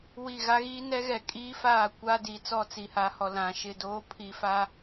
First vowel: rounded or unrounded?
unrounded